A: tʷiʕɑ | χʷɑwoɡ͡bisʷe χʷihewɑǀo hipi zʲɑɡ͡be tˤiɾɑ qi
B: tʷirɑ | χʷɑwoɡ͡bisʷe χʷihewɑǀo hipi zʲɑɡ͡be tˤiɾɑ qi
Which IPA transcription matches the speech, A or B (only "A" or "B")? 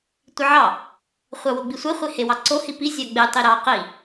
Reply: A